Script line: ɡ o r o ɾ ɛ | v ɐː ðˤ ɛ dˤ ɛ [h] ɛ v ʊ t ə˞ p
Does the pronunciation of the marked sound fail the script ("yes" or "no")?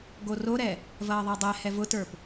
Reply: no